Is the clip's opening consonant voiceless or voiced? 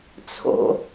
voiceless